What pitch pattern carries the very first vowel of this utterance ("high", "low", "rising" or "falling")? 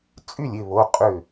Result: falling